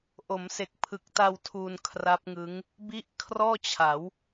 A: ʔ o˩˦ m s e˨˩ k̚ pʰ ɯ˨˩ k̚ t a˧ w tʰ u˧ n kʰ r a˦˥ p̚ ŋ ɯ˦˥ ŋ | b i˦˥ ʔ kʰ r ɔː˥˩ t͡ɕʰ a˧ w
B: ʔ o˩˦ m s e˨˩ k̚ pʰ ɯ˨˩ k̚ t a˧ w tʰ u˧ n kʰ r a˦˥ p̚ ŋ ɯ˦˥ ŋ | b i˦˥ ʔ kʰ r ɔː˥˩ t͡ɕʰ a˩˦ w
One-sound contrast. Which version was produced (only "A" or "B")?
B